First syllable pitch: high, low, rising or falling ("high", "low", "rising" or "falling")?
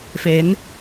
rising